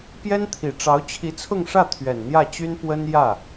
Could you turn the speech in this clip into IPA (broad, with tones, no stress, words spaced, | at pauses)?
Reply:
pjɛ˥nt̪ʰi˨˩ʈ͡ʂɑ˧˥ʊ̯ t͡ɕʰi˧˥t͡sʰʊ˥˧ŋʂä˥˩ t̪ʰɥɛ˨˩nn̪jä˥˩t͡ɕy˥n pwə˥n jä˥˩